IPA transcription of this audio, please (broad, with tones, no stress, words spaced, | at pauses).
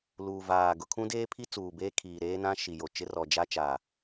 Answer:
luː˨vaː˨ ɡʊ˨kʰũ˦deː˦ pʰi˦t͡suː˨beː˦ kʰiː˨ ɾeː˦nã˦ ʃi˨jo˨t͡ʃɪ˦ rɔ˨d͡ʒa˦ t͡ʃaː˨